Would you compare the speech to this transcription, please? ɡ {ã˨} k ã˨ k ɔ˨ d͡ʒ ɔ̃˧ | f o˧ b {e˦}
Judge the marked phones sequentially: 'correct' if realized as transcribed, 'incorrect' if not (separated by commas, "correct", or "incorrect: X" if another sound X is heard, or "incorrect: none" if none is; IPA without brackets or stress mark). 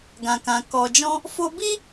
correct, incorrect: i˦